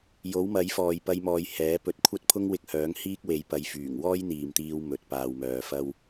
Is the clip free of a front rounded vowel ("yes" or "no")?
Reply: no